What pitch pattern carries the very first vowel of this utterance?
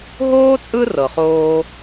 high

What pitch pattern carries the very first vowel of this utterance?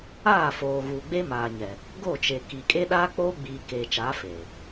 falling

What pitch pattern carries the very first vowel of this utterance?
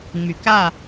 low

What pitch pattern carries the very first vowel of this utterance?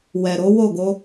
low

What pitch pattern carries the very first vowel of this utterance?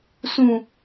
low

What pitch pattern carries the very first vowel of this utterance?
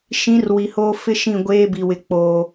rising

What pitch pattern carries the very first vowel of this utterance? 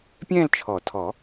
falling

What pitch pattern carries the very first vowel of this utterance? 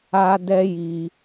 high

